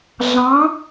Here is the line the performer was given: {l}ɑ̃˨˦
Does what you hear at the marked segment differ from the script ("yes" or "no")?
yes